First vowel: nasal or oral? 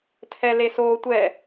oral